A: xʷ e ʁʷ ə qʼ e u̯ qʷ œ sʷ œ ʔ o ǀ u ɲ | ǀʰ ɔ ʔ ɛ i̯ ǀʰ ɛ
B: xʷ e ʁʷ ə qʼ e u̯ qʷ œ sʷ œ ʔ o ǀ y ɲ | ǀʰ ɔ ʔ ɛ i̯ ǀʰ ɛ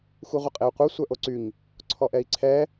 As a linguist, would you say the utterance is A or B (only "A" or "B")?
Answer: B